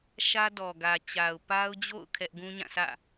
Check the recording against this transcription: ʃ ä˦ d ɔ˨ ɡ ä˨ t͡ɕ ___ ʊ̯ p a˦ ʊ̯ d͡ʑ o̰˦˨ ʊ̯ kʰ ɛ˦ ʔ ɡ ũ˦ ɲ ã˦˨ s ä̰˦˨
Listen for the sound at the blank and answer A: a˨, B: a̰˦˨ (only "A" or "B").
A